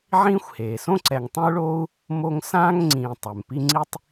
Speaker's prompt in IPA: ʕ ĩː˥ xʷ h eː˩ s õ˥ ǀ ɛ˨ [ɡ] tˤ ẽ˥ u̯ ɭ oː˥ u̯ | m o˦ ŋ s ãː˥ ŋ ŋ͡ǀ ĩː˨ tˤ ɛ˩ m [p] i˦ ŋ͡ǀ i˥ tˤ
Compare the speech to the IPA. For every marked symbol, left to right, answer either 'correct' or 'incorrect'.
incorrect, correct

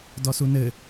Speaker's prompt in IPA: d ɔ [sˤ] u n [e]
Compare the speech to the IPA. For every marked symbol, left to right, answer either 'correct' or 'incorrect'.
incorrect, incorrect

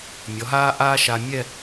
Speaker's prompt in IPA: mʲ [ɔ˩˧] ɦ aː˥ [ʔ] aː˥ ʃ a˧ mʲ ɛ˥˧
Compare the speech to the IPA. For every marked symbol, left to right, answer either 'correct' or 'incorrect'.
correct, correct

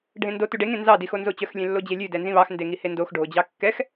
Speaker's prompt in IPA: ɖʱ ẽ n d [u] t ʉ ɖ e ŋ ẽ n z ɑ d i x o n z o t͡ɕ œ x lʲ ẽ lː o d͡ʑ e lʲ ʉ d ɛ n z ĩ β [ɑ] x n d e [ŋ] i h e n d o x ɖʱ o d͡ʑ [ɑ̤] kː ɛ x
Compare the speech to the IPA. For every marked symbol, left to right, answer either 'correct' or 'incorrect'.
incorrect, correct, correct, incorrect

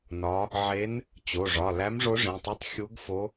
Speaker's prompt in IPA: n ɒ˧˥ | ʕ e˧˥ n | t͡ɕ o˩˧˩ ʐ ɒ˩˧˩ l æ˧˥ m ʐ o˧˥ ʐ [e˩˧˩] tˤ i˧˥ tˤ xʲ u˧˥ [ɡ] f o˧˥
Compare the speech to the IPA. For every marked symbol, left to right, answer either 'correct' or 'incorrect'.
incorrect, correct

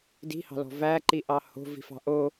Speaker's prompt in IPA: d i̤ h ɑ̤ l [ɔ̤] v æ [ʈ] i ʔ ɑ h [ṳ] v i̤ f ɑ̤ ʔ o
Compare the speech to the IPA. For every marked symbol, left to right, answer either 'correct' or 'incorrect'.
correct, incorrect, incorrect

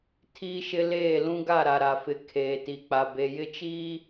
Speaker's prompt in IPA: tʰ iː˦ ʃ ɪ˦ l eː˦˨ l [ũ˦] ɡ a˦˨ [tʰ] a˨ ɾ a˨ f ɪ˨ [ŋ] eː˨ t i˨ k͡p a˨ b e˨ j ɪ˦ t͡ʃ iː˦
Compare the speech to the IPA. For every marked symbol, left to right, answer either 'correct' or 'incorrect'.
correct, incorrect, incorrect

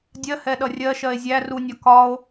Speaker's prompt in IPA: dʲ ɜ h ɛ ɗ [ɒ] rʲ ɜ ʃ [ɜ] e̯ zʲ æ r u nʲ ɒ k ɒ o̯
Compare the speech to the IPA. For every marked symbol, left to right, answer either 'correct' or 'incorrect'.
incorrect, correct

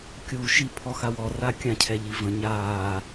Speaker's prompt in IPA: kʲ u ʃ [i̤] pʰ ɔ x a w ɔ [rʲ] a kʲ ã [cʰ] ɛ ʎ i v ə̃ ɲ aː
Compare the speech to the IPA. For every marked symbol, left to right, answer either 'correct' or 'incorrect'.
incorrect, incorrect, correct

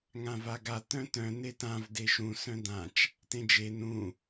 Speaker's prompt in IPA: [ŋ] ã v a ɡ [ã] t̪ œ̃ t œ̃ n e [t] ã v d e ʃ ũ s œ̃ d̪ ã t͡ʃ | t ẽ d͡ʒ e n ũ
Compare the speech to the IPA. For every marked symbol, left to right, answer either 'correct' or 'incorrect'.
correct, incorrect, correct

